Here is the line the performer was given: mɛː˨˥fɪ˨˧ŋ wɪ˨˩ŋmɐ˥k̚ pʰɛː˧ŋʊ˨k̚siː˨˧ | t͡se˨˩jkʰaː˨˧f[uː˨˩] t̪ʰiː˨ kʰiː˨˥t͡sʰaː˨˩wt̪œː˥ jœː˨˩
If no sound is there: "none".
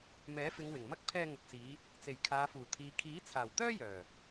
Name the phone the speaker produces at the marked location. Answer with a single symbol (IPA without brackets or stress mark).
uː˨˩